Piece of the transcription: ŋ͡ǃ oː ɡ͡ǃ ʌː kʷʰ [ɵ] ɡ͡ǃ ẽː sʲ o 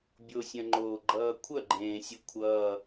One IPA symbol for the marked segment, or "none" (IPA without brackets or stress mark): œ